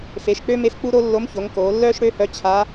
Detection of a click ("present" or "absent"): absent